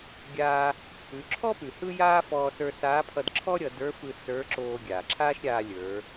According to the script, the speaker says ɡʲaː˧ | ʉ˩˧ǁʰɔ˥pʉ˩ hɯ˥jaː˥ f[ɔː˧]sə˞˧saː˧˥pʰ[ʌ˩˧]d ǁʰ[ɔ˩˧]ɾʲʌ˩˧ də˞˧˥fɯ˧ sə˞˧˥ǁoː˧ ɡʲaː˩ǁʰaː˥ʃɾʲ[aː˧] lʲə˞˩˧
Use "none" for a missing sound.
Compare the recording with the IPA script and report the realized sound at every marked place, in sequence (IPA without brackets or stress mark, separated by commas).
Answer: ɔː˧, ʌ˧, ɔ˥, aː˧